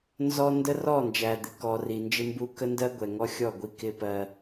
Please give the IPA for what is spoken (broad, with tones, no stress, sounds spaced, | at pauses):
n z ɔ˦ n d ə˦ r ɔ˦˨ n d͡ʒ æ˨ d̪ ɪ˨ k ɔ˨ r i˨ n d͡ʒ ɪ˦ m b u˦ k ə˦ n d ɜ˦ ɡʷ ɛ˨ ŋ ɔ˦ xʲ ɔ˦˨ ɡʷ i˦ k ɪ˦ p ɜ˦